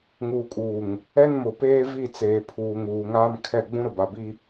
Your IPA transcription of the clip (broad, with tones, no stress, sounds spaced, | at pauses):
ŋ uː˨ kʼ uː˨ ŋ | ɛ˦ n m ʊ˨ p eː˦ v i˦˨ t͡s eː˨ pʰ uː˨ ŋ uː˨ ŋ aː˦ m kʰ ɛ˦˨ ɡ͡b ũ˦ ɾ ʊ˨ b a˨ b i˦